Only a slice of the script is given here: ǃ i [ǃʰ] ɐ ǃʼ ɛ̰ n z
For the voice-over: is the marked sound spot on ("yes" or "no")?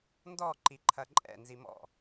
yes